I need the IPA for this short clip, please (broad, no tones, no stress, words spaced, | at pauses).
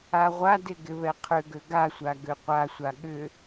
aʁʷadɪ ɡɪβɛqʰʏɡø ɡasʷa ɡøqʷasʷa ɠʏ